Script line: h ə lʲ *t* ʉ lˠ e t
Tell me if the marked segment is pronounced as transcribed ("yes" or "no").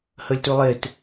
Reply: yes